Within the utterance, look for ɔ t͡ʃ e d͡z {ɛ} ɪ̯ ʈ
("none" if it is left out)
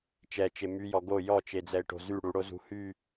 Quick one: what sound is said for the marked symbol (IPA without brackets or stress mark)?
ɛ